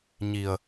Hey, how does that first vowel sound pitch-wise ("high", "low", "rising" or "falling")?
low